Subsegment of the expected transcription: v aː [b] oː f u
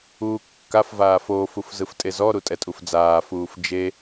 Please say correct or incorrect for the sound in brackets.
incorrect